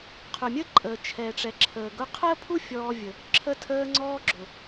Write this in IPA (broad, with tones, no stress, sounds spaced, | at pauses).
qʰ ʊ˩ mʲ ə˥ ǃʼ əː˩ t͡ʃʰ ɛ˩ ʈ͡ʂ ɛ˩ ǁʰ əː˩ ɡ ʊ˧ qʰ əː˥ pʰ u˥ fʲ ɔː˧ vʲ ə˩ | ǁʰ ə˧ tʰ əː˧ ŋ͡ǀ ɔː˧ ɡ͡ǁ ʊ˩